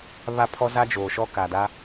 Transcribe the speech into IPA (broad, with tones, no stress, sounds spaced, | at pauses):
β a˦ pʰ ɔ˦ z a˦ d͡ʒ oː˨ ʃ ɔ˦ k a˨ d a˦